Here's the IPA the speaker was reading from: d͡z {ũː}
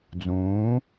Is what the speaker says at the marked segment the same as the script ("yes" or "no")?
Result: yes